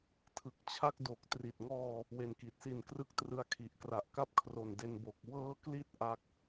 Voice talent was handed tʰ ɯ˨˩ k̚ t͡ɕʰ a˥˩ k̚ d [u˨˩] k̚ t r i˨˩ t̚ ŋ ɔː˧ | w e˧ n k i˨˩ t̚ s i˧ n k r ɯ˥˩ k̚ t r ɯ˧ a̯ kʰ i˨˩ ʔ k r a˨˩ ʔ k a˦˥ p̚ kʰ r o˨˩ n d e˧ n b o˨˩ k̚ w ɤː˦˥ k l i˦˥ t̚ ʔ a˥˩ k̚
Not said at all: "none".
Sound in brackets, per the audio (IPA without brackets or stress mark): o˨˩